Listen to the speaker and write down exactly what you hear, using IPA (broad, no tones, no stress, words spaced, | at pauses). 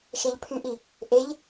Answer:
ʃɛʎpʰyʔi | ʔeʎ